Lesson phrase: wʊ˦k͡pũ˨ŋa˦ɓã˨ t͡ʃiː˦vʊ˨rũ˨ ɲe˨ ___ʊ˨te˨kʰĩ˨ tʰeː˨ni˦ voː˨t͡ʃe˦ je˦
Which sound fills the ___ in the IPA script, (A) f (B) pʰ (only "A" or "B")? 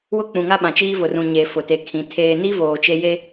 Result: A